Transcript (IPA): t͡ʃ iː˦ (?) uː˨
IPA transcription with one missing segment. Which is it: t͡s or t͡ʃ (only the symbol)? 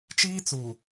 t͡s